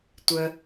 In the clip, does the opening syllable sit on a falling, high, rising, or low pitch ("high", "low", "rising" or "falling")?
low